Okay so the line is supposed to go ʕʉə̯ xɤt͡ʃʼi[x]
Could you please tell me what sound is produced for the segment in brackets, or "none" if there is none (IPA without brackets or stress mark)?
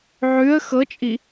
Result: none